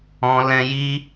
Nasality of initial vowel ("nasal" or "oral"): nasal